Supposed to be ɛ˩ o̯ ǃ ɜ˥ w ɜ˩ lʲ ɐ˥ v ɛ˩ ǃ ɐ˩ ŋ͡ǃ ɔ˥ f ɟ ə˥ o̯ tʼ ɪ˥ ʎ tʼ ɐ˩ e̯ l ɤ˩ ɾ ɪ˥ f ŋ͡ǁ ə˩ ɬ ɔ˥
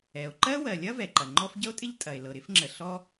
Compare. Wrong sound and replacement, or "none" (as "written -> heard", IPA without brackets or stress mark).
none